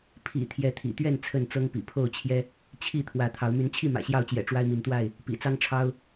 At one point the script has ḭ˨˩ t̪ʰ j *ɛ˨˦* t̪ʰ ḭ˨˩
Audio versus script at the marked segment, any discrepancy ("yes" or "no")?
no